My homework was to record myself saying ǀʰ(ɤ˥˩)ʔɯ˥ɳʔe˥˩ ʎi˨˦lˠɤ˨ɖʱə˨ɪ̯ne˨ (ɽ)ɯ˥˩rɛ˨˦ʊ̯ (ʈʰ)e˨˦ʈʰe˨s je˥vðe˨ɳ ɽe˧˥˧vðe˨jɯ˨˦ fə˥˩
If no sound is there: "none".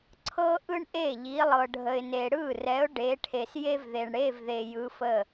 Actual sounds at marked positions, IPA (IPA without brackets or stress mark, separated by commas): ɤ˥, ɽ, ɖ